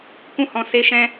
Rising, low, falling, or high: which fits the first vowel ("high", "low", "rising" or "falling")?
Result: high